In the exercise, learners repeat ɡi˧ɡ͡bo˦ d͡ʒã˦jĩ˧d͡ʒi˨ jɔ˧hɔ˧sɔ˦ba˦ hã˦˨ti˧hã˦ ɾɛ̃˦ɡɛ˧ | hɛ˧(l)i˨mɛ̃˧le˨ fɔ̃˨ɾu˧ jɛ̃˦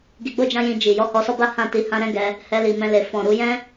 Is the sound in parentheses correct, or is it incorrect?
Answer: correct